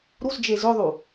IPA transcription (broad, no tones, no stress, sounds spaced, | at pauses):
ɾ u z d͡ʒ e z ʏ ðˤ u